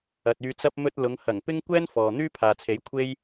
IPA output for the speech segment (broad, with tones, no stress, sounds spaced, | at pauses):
ɐ˨ t̚ yː˧ t͡s ɐ˥ p̚ m ɵ˧ t̚ l ʊ˨˧ ŋ h ɐ˨˩ ŋ p ɪ˥ ŋ kʷ ɛː˥ n f ɔː˨ n̪ yː˥ pʰ aː˨ t͡sʰ e˨˥ j kʷʰ e˥ j